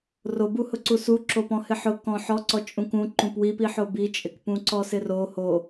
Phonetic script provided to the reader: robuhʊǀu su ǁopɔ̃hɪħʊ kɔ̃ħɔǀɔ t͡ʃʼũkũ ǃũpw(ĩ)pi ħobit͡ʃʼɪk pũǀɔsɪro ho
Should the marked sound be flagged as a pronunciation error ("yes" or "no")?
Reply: yes